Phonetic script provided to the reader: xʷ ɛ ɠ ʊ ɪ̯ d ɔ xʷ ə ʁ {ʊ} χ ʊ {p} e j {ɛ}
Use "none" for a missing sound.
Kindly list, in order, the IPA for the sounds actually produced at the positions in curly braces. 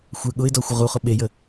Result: u, ɓ, ə

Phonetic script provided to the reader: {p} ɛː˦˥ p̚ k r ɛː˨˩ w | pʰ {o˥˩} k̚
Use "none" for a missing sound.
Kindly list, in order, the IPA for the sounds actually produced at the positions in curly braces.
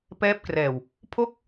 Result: p, o˥˩

